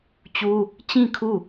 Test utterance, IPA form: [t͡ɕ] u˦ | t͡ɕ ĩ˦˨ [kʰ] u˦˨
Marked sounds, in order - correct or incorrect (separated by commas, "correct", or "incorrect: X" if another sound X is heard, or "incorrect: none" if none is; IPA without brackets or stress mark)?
correct, correct